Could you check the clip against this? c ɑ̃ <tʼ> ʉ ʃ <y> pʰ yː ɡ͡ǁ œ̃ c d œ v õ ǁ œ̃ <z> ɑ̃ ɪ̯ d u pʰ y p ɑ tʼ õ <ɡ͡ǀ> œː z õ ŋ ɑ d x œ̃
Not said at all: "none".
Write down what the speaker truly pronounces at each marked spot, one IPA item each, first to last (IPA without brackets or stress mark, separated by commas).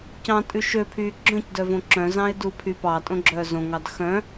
tʼ, ø, z, ɡ͡ǁ